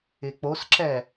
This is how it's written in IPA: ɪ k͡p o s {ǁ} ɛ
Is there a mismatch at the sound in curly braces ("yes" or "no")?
no